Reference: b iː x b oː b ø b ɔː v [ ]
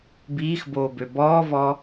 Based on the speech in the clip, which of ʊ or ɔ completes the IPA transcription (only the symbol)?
ɔ